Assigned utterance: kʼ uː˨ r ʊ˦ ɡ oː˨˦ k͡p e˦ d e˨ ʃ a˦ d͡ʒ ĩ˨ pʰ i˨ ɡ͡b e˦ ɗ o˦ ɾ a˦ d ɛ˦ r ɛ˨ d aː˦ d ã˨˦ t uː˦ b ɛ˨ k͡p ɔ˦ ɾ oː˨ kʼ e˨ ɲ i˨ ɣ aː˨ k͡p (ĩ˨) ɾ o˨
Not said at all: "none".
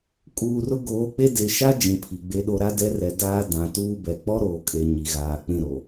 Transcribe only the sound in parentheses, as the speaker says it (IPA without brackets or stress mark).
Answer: ĩ˦˨